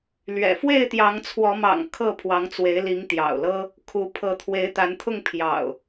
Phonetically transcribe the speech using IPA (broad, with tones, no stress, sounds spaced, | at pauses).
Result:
l ɥ ɛ̰˨˩ f w e˥˨ ɪ̯ t̪ j ɑ˨˦ ŋ t͡sʰ w ɔ˨˦ m ɑ̰˨˩ ŋ kʰ ɤ˥˨ pʰ w ɑ˨˦ ŋ t͡s w e˨˦ ɪ̯ l i˨˦ ŋ t̪ j ɑ̰˨˩ ʊ̯ l ɤ˦ | kʰ u˨˦ pʰ ɤ˨˦ t̪ʰ w e˨˦ ɪ̯ t̪ a˨˦ n t̪ʰ ʊ˥˨ ŋ pʰ j ɑ̰˨˩ ʊ̯